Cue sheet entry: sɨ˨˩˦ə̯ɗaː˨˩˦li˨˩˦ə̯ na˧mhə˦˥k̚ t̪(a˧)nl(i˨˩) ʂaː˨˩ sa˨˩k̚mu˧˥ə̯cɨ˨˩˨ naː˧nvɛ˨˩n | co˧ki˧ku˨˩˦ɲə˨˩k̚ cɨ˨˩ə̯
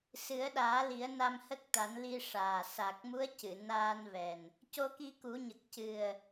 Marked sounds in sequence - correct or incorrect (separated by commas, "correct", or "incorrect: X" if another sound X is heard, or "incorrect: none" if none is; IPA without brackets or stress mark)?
incorrect: a˨˩˦, incorrect: i˧